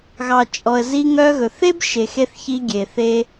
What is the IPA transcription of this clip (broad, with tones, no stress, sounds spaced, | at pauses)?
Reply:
ɣ ɑ˨ t͡ʃʼ ɔ˨ ə̯ z i˧ ŋ œ˧ ɣ ɵ˨ θ e˦ b ʃ e˨ x e˧ θ ç i˧ ɡʲ e˨ θ e˧